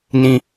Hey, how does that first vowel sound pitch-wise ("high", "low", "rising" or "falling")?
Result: high